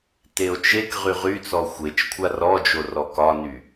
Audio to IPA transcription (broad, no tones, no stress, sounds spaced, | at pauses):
t e o̯ t͡ʃ e k ʁ y ʁ y t͡s ɔ xʷ e t͡ʃ kʷʰ a r ɔ d͡ʒ o r ɔ k ɒ n y